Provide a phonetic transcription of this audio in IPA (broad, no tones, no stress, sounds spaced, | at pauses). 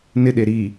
n ɪ ɗ e ɾ i